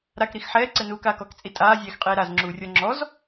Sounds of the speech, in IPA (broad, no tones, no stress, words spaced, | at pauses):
ɾakɾix ħɛːǀɛnuːkaːk ɔkt͡sʼi tʼaːzʲɛːxqʼeː ɾazŋ͡ǁuːrʲɔ ŋ͡ǁɔz